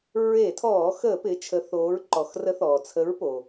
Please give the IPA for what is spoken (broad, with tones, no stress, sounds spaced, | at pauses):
ɹ e˧˩˧ tʰ ɔː˧˩˧ x əː˧˩˧ p ɪː˩˧ t͡ʃʰ ə˩˧ θ oː˩˧ ɹ ǃ ɔ˩ x r ə˨˥ θ ɔː˩ t͡sʰ ə˨˥ ɹ p o˩